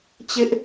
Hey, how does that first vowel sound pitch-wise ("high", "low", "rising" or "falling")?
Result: high